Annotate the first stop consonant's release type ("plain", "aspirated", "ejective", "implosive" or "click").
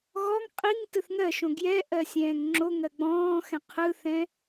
ejective